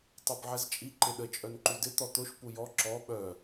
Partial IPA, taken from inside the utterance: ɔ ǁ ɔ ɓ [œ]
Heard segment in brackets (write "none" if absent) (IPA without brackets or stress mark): œ